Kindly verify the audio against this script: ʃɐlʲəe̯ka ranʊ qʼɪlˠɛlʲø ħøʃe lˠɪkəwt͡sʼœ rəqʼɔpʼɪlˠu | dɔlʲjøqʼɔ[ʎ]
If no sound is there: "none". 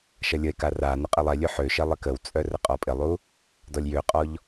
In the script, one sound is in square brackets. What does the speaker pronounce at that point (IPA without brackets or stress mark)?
ʎ